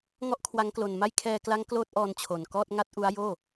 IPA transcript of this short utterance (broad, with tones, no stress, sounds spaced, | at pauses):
ŋ ɔ˥˩ ʔ kʰ w a˦˥ ŋ k l o˧ n m a˥˩ j kʰ ɛː˧ k l a˦˥ ŋ k l oː˦˥ t̚ ʔ ɔː˧ n t͡ɕʰ o˨˩ n k ɔː˥˩ t̚ ŋ a˥˩ t̚ ʔ u˦˥ a̯ j oː˥˩